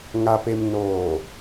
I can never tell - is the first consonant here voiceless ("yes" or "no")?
no